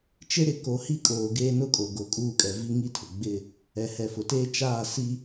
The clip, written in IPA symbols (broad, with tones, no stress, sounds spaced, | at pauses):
t͡ʃ e˦ ɾ ɪ˨ k o˨˦ h i˦ kʼ oː˨ ɡ eː˦ n ʊ˦ kʼ o˨ ɡ o˨ kʼ uː˦˨ kʼ ɛ˨ v i˦ ŋ i˦ tʰ ʊ˨ ɡ͡b ɪ˦˨ | ɛ˨ h ɛ˨ f ʊ˨ t eː˦ t͡ʃ aː˦˨ s i˦